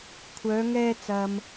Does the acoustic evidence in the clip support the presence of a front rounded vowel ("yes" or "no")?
yes